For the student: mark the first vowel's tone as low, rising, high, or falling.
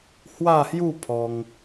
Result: falling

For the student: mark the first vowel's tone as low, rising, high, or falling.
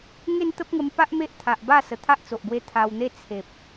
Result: falling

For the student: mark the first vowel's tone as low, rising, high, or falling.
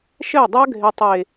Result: falling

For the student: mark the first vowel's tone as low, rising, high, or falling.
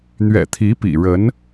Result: low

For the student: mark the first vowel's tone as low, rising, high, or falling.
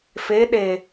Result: rising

